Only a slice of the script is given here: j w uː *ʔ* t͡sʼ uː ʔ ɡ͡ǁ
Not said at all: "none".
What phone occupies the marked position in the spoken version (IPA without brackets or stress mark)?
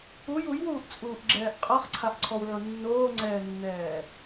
ʔ